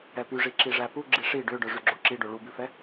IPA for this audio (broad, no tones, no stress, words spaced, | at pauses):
ɛpyʐi ǁiʐæpu ɡ͡ǁiʂi ɖøɖœ ʐyɡ͡ǁoǁiɖo ɭubʉfɛ